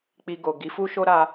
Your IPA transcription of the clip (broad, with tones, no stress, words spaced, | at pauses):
k͡pi˧ ɡo˨ ɡi˨˦fu˦ ʃo˦ɾa˧